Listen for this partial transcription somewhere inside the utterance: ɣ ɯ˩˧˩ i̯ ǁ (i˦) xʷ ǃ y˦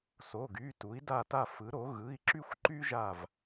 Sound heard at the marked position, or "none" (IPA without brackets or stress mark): y˦